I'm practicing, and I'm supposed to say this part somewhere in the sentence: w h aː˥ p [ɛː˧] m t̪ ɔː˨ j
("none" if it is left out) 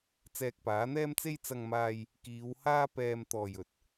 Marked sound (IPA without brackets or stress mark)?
ɛː˧